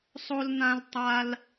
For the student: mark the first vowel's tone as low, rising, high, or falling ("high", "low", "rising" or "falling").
high